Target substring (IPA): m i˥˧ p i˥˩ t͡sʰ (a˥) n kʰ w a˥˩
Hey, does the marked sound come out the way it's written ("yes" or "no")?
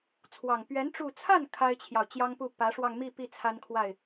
yes